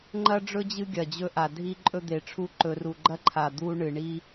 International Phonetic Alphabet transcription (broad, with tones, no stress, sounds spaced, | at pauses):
ŋ͡ǃ ɐ˦ ɖ͡ʐ ɵ˦ d͡ʑ ɨ˦ ɡʲ ɐ˨ d͡ʑ ɵ˦ ʔ a˨ dʱ i˦ ǃʼ ɵ˦ d̪ e˨ ʈ͡ʂʰ u˦ ǃ ɵ˨ r u˨ ɡ͡ǃ ɐ˦ ǃʰ a˨ d̪ u˦ ɳ ɨ˨ ɳ i˦